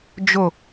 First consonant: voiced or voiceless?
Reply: voiced